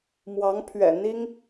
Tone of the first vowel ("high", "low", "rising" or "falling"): rising